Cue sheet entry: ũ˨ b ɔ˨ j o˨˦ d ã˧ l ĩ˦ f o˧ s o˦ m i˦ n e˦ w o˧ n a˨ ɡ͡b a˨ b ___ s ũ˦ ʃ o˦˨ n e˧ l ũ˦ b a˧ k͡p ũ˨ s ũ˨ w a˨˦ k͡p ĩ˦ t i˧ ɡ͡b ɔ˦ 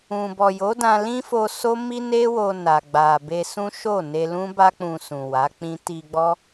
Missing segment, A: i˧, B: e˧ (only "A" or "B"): B